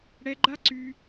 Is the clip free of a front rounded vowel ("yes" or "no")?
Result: no